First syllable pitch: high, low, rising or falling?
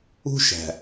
high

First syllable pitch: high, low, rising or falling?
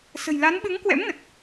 low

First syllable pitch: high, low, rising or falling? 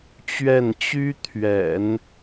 falling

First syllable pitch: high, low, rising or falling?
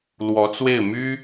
rising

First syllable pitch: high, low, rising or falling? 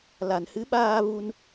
low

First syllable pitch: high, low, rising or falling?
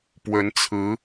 rising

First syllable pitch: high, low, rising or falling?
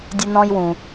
high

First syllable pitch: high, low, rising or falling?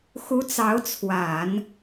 rising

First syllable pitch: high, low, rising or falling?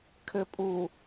low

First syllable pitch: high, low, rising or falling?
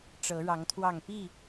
rising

